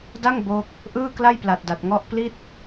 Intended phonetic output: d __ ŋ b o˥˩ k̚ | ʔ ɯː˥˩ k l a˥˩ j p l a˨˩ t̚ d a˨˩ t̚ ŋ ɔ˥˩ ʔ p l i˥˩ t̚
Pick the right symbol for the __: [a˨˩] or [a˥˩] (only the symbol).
a˥˩